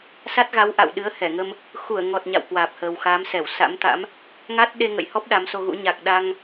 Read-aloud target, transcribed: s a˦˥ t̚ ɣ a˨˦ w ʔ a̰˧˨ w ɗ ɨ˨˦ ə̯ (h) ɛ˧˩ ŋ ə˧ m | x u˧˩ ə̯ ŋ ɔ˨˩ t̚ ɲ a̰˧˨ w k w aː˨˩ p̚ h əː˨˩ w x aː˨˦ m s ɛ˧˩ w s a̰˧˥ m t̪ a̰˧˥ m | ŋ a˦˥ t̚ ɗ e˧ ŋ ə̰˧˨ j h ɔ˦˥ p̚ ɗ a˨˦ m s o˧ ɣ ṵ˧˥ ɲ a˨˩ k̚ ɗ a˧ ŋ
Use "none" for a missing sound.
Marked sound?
h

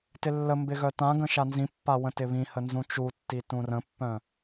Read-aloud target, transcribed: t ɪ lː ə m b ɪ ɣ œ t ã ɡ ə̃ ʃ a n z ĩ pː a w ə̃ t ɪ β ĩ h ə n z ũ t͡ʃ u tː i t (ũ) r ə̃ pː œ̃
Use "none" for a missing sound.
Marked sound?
ũ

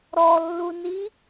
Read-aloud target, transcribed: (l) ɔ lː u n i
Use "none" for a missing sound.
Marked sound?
ɾ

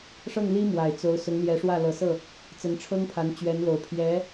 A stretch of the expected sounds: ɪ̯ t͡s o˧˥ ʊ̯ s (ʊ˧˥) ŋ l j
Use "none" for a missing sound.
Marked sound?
ʊ˧˥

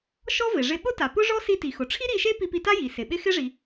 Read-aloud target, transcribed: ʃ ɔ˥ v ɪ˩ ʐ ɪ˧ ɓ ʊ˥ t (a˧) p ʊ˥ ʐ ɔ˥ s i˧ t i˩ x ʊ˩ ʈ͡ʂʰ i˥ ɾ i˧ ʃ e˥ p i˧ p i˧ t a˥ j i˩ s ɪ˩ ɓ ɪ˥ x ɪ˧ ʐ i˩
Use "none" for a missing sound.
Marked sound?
a˩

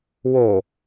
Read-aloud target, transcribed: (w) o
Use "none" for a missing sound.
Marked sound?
w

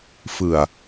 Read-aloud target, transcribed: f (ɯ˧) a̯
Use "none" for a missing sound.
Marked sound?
ɯ˨˩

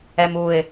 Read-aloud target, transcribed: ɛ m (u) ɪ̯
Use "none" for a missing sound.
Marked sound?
u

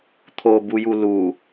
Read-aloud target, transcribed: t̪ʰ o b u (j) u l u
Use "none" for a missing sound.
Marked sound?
j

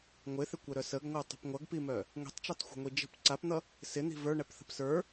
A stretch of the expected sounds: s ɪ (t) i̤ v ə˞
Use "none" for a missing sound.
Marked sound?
n̪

